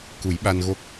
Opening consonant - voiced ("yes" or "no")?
no